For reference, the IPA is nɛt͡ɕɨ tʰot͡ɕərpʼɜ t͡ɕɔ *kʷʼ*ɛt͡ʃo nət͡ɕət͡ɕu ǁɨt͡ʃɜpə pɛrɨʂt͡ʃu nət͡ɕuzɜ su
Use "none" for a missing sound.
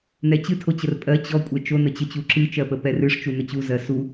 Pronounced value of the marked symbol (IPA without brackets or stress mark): kʷʼ